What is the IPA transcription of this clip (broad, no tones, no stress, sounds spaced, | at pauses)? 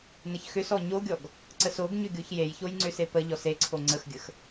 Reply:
n ə ç x ʏ s ɔ ɲ o ɡʲ ɔ ɡ | ǀ ə s o ɡ ɲ ʏ ɡʲ o ç j e j ç o j ŋ͡ǀ ʏ s e p ə ʎ ɔ s e ǀʰ o ŋ͡ǀ ə x ɡʲ ə x